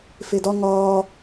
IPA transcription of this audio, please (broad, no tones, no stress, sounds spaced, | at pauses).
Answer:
f e d ɒ ŋ ɒː